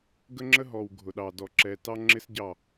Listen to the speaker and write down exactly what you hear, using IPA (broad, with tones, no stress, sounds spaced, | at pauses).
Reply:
ɡ ə˦ ŋ͡ǁ ə˦ ɦ ɔ˨ w ɡʱ ʊ˨ ɗ ɑ˨ d ɔ˨ ǁ ɛ˨ t ɑ˦ ŋ͡ǁ ɪ˦ s ɟ ɑ˦˨